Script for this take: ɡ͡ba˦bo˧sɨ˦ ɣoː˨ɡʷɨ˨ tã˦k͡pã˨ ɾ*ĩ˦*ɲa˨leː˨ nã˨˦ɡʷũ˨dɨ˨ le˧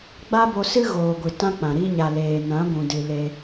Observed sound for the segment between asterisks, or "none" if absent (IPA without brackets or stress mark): i˦